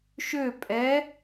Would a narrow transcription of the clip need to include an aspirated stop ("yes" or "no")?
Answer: no